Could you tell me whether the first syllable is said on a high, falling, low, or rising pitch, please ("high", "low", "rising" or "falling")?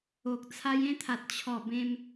low